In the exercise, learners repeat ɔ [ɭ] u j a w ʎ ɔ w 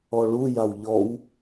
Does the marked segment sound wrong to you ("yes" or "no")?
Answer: no